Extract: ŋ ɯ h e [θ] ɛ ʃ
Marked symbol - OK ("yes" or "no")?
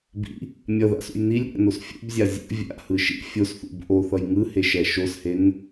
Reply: no